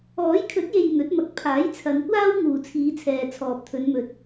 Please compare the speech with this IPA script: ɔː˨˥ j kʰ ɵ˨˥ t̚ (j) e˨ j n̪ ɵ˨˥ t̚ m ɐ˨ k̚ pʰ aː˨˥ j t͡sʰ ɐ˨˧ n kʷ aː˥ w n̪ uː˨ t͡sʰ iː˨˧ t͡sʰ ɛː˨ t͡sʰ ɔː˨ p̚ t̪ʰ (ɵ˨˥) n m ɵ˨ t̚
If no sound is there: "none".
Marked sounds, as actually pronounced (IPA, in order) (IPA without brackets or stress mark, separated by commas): j, ɵ˨˧